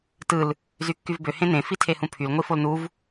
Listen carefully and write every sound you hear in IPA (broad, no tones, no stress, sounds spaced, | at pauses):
t ɯ l | z y kː y v b ø h ẽ n ẽ f i tʰ e h ũ pʰ y l ŋʷ i f o l n u v